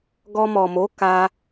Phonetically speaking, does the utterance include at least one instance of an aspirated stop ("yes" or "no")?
no